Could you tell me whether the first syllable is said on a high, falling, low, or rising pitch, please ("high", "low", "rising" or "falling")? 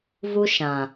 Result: high